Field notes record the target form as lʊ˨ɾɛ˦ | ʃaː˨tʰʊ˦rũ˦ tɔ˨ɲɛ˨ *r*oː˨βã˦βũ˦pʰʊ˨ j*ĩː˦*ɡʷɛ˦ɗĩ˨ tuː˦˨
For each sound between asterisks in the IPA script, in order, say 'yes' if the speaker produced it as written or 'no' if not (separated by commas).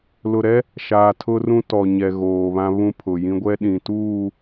no, no